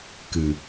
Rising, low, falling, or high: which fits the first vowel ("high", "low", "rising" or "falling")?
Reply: low